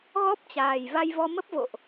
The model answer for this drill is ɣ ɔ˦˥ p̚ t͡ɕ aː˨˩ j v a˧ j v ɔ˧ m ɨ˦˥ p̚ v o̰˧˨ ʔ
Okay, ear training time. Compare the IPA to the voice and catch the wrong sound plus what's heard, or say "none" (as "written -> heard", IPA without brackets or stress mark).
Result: ɨ˦˥ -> ə˦˥